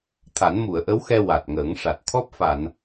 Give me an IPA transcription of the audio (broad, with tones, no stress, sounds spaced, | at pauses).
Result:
t̪ʰ a˨˩˦ n m u˨˩˨ ə̯ ʔ ə˧˥ w x ɛ˧ w a˨˩ t̚ ŋ əː˨˩˦ ŋ ʂ a˨˩ t̚ t̪ʰ ɔ˦˥ p̚ f a˨˩˨ n